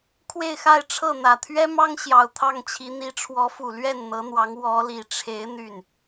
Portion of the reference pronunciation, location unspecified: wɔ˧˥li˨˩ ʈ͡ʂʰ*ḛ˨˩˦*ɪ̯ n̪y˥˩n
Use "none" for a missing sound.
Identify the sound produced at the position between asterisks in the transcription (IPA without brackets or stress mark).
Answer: e˧˥